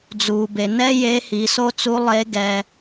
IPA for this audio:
d͡z uː˩ b e˩ n ɛ˥ j eː˧˥ h i˩˧ s o˥ t͡s u˧˥ lˠ e˧˥ ɡ ɛ˧

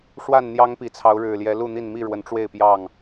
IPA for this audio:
ʂ w a˥˨ n n̪ j ɑ˦ ŋ p i˨˩ t͡sʰ ɑ˨˦ ʊ̯ ɻ ɻ̩˨˩ l j ɛ˨˦ l u˥˨ n̪ i˥˨ n m i˥˨ ɻ w ə˨˦ n ʈ͡ʂ w e˥˨ ɪ̯ p j ɑ˥˨ ŋ

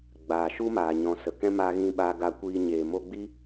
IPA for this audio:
ɡ͡b aː˨ ʃ u˦ m aː˨ ɲ ɔ̃˨ s ə˨ k ɛ̃˦ m a˧ ɣ ĩ˧ ɓ aː˧ ɡ a˧ kʷ iː˧ ɲ eː˨ m o˧ ɡ͡b i˦

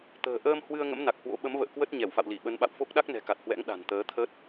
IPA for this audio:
t̪ ə̤ː˨˩ ʔ əː˧ m h w ɨ˧ ə̯ ŋ ə̰˧˥ m n a˨˩ k̚ h w o̰˧˥ ɓ ə˨˦ m v ə̰ː˧˨ k w ə˦˥ t̚ ɲ ɛ˧˩ w f a̰˧˨ w l i˧˩ ɓ ə˨˦ n ɓ a̰˧˨ w f o˦˥ k̚ ɗ a˦˥ k̚ n ɛ̤˨˩ k a˨˩ t̚ h w ɛ̰˧˥ ŋ ɗ a̤˨˩ n t̪ əː˨˦ t̪ʰ ə˦˥ t̚

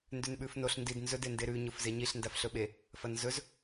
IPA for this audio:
n d ʉ n ɓ ʉ f n o ɬ n d i d n z ɵ d e n d e ɾ ʉ ɲ o f z e ɲ i ɬ n d a f ɬ ɵ ɓ e | f ɐ n z ɵ z

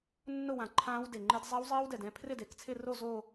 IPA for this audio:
nː ʊ˥˧ w ã˨˩ ǃʰ ãː˦˥ w d e˨˩ ŋ͡ǃ ɪ˦˥ d zˤ a˦˥ w zˤ iː˦˥ w d ɛ˨˩ d ɛ̃˥˧ pʰ r ɪ˥˧ d e˨˩ k t͡sʰ ɪ˥˧ r o˥˧ z o˥˧

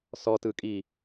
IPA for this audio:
s ɔ t ɯ kʼ i

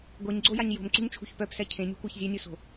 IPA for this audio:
ɡʷ e ɲ ɡ͡ǀ o j a ɲ j o̤ m ǀ ṳ ɲ t͡ʃʰ ṳ ç p œ p s ɛ cʰ ẽ nʲ ṳ kʷ ɛ ç zʲ ø nʲ u s o̤

